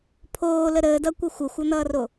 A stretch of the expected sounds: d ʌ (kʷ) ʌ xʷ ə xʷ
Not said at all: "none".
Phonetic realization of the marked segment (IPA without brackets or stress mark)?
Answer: kʷ